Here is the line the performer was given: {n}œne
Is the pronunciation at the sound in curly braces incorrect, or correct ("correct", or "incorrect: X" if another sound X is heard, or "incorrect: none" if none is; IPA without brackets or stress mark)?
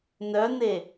correct